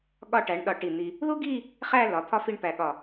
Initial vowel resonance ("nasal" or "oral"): oral